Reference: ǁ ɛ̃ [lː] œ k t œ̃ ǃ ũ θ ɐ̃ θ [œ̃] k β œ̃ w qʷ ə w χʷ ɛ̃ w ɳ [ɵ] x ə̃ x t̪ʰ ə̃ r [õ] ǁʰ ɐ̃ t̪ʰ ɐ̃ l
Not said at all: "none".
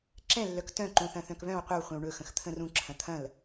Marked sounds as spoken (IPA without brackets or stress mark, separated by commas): lː, œ̃, ɵ, ũ